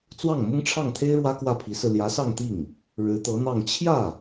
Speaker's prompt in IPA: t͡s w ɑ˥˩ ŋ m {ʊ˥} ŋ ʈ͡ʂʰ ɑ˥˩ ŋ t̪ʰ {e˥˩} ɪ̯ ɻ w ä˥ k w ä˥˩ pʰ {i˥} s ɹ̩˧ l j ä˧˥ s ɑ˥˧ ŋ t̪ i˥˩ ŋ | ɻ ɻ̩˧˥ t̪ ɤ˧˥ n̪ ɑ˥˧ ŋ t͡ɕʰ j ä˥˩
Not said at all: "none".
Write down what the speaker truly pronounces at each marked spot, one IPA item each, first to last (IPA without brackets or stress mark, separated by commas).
ʊ˥, e˥, i˧˥